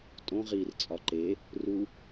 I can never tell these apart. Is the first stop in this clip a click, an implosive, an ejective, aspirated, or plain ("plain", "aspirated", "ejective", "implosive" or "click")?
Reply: ejective